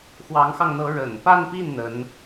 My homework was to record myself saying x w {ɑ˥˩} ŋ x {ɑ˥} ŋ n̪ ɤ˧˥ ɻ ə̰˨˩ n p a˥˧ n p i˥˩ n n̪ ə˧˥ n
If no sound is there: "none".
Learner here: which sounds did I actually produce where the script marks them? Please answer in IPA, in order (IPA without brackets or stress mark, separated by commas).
ɑ˧˥, ɑ˧